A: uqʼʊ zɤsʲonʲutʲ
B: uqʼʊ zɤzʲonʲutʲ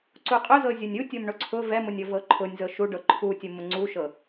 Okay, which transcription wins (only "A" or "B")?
B